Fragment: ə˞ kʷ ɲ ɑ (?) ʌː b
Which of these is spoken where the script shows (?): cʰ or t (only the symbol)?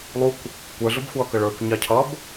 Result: cʰ